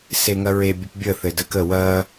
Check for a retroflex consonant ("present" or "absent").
absent